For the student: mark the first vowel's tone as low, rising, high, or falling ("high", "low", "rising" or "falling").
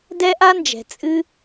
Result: high